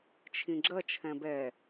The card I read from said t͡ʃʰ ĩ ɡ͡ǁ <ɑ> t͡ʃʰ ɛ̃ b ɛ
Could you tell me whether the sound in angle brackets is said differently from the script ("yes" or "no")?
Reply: yes